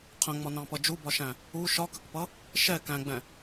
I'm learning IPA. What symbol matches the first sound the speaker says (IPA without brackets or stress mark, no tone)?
qʰ